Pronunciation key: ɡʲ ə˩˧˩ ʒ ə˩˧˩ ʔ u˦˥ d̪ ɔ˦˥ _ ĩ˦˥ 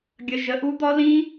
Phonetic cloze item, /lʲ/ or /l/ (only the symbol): l